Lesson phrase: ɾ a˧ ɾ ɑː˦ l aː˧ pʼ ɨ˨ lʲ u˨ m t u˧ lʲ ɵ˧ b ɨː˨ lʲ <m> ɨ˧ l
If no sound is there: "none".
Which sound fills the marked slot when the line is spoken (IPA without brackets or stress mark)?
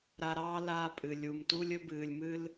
m